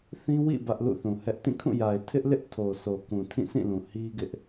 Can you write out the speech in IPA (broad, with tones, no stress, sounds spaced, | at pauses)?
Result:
θ ĩ˦ w ḭ˦˨ b ä˦ ʔ l ṵ˦˨ θ ũ˨ h ɛ˦ ʔ t ĩ˦˨ kʰ ũ˦˨ j a˨ ɪ̯ tʰ ɪ˦ ʔ l ɪ˦ ʔ tʰ o˨ s o˨ k ũ˨ tʰ ĩ˦˨ s ĩ˦˨ l ũ˨ h i˦ ɡ ɪ˦ ʔ